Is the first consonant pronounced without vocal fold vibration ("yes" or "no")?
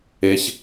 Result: yes